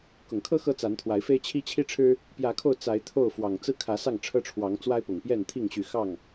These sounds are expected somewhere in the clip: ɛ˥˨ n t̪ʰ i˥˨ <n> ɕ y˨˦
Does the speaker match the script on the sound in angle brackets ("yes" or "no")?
no